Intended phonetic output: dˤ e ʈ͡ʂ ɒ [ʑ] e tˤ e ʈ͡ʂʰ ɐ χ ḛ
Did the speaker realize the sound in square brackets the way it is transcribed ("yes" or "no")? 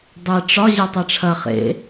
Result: yes